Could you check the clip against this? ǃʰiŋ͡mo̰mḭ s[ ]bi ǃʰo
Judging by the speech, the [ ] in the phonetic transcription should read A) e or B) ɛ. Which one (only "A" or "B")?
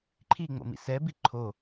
B